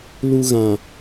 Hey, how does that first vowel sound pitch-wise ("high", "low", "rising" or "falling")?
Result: low